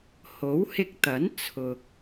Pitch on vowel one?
rising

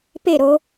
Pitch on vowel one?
falling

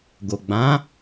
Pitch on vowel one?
low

